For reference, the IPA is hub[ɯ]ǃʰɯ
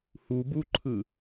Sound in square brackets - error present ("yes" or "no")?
yes